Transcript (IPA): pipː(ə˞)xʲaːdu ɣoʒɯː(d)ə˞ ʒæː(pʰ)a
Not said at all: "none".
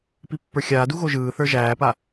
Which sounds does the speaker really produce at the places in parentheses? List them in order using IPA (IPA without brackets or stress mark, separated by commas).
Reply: ə˞, θ, p